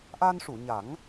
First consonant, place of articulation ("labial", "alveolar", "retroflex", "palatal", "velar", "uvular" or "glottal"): glottal